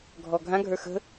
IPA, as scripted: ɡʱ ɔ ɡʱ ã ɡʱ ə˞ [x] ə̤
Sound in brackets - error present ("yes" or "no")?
no